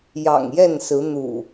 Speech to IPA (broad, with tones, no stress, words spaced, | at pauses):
jɑ̰˨˩ŋjɛ˥˨nsɹ̩˨˦ n̪ṵ˨˩